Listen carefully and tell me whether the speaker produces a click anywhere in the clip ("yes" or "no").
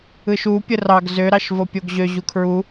no